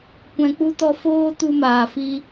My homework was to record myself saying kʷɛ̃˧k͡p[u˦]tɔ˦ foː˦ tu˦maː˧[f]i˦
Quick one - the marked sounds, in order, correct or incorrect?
correct, correct

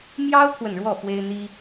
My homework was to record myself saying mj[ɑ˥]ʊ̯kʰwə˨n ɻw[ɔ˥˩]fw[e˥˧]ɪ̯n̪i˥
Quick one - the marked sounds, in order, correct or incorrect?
correct, correct, incorrect: e˥

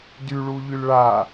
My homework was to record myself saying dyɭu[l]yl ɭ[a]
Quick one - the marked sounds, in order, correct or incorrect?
incorrect: ʎ, correct

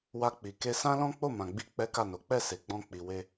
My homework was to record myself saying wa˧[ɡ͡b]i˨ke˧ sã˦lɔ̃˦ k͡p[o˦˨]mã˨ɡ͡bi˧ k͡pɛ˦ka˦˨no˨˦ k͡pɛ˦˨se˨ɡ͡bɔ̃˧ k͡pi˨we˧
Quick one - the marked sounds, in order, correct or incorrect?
incorrect: k͡p, correct

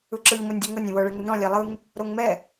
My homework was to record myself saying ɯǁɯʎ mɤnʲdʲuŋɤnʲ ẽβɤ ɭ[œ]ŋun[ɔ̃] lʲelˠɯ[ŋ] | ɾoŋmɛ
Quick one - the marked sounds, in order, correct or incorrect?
incorrect: ɛ, correct, correct

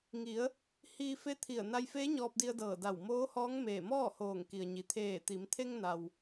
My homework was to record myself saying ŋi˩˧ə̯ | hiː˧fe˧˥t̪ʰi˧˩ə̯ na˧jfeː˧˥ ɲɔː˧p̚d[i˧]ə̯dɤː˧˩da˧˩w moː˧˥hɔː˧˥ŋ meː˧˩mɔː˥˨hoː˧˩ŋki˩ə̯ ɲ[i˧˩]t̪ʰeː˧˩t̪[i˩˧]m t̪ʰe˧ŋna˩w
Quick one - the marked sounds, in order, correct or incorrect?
correct, incorrect: i˩, correct

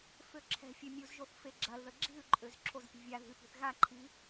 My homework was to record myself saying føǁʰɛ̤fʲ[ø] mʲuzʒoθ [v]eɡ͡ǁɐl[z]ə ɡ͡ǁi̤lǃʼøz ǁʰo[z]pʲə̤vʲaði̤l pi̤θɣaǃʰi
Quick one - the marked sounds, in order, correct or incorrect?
correct, incorrect: f, incorrect: ð, correct

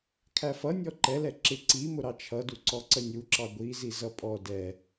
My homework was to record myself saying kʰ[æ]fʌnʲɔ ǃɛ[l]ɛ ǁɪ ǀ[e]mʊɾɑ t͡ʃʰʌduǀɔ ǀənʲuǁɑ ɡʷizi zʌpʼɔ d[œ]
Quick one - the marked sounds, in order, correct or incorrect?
correct, correct, incorrect: i, incorrect: ɛ

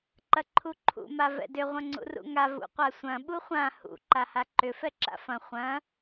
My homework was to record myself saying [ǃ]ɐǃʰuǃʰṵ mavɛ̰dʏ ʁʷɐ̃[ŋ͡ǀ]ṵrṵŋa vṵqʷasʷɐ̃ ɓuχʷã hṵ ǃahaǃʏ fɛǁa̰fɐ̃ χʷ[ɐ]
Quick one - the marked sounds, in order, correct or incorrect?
correct, correct, incorrect: ɐ̃

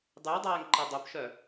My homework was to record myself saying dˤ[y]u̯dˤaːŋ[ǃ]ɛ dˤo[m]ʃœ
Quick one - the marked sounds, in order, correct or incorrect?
correct, correct, incorrect: p

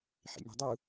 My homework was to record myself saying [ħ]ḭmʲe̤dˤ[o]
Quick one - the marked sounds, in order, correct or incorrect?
correct, incorrect: u

